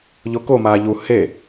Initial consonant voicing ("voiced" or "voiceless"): voiced